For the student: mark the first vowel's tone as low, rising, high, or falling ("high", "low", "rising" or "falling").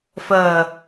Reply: low